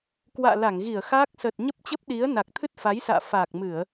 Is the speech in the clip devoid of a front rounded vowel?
yes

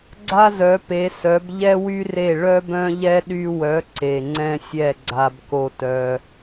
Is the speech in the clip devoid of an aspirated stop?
yes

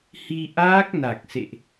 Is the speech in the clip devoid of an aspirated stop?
yes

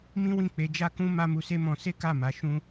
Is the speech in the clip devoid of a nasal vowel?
no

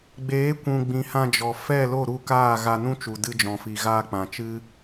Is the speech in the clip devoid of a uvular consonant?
yes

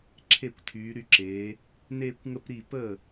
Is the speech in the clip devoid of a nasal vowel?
yes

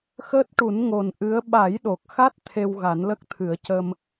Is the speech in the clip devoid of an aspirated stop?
no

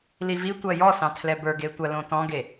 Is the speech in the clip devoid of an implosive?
yes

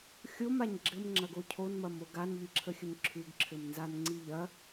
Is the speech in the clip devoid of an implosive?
yes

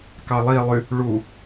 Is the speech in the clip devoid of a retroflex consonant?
no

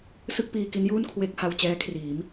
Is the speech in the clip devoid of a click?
yes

